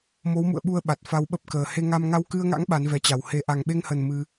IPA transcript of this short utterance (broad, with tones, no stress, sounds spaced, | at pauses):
m o˨˦ w m ṵ˧˨ ə̯ ɓ u˧ ə̯ ɓ a˨˩ t̚ f a˧ w ɓ ə˦˥ p̚ k əː˨˩ h e˧ ŋ a˧ m ŋ a˧ w k ɨ˧ ə̯ ŋ a̰˧˥ ŋ ɓ a˨˦ n v ɛ˧ t͡ɕ a˨˩ w h e˨˩ ʔ a˨˩ ŋ ɓ e˧ ŋ h ə˨˩ n m ɨ˧